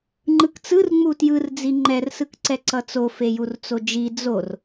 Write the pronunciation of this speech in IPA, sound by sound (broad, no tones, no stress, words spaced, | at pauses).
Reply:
ŋ͡ǃɯkt͡sɯr ŋ͡mutjɯr d͡ziŋ͡ǃɛr sɯkǀɛǀʌt͡so fejurt͡sod͡ʒi d͡zor